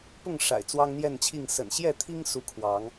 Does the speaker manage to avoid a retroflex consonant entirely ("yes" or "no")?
no